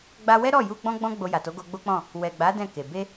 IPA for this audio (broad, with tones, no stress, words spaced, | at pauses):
ɡ͡ba˧wɛ˦ɾɔ˦˨ju˧ ɡ͡bɔ̃˦ɡ͡bɔ̃˦ ɡ͡bo˧ja˨to˨˦ ɡo˧ɡ͡bo˦k͡pɔ̃˦˨ | wɛ˨ ɡ͡ba˨˦ dɛ̃˦˨ke˨ be˧